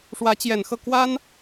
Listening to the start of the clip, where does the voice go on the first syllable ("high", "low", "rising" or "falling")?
rising